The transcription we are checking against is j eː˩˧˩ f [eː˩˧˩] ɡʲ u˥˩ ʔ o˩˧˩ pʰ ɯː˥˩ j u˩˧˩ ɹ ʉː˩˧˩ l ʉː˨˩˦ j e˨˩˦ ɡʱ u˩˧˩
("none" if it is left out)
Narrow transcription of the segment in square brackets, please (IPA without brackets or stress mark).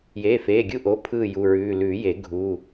eː˩˧˩